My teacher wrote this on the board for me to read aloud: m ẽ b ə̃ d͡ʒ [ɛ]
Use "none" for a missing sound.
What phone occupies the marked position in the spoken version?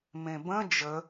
ə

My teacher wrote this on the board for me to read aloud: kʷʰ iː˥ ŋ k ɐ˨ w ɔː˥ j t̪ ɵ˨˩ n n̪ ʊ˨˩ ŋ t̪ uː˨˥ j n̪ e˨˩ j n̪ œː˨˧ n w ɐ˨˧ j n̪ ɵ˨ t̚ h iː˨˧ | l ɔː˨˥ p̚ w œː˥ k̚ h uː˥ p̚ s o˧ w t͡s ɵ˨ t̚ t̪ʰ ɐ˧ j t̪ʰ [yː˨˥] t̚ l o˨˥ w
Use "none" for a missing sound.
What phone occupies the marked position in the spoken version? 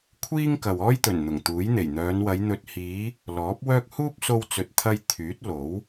yː˨˥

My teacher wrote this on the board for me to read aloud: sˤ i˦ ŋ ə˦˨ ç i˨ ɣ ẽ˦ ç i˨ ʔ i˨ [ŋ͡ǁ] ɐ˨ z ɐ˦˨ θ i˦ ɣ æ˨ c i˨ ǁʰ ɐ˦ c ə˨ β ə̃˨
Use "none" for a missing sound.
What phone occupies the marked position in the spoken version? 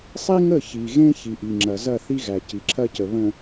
ŋ͡ǁ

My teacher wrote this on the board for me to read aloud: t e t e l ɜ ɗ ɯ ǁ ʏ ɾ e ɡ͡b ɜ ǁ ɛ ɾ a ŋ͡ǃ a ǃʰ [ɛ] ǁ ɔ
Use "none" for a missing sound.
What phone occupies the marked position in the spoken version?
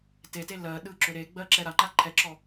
ɛ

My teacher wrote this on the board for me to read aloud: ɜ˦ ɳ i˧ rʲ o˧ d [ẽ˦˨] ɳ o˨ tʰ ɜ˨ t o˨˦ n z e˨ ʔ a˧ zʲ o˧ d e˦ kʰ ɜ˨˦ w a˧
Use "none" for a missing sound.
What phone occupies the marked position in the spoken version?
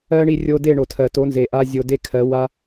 e˦˨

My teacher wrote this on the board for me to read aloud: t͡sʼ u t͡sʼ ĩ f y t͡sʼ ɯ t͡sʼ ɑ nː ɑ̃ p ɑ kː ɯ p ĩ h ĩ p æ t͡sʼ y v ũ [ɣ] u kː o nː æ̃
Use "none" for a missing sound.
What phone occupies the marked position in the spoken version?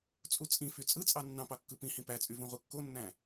ʁ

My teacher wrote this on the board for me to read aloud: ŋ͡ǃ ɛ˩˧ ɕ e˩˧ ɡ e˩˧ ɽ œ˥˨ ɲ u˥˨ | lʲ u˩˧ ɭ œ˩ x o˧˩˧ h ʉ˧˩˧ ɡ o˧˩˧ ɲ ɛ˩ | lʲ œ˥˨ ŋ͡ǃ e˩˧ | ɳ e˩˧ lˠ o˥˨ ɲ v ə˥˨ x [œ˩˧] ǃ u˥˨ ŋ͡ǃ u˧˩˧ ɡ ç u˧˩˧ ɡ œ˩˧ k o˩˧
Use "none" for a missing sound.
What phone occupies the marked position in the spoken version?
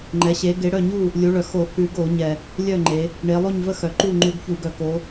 œ˩˧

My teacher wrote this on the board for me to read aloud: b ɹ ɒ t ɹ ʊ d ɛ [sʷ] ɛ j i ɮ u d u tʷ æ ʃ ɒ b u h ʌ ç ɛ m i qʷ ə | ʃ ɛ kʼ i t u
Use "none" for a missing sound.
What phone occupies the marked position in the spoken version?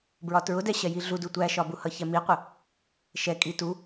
ɕ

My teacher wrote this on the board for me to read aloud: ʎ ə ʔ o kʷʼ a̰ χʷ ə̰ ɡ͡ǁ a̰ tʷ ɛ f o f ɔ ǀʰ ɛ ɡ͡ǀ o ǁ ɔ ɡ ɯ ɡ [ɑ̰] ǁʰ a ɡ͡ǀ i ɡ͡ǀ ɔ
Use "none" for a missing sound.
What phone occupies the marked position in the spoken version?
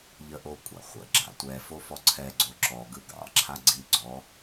ɑ̰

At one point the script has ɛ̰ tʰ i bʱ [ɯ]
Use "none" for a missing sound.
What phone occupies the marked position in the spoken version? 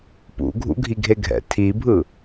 ɯ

